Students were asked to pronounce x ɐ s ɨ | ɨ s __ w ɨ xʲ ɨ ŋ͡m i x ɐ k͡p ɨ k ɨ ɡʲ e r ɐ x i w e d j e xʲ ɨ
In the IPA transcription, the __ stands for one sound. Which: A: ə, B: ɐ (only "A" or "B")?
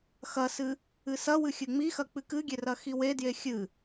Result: B